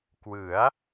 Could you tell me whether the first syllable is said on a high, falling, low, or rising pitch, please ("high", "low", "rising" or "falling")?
rising